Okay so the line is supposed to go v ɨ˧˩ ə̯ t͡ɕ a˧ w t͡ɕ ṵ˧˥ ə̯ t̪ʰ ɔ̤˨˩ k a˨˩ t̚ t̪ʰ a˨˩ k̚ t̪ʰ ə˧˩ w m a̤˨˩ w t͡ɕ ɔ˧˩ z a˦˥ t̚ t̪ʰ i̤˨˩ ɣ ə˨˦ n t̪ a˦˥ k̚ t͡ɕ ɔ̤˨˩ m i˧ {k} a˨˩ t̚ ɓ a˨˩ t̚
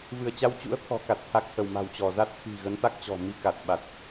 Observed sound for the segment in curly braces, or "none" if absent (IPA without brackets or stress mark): k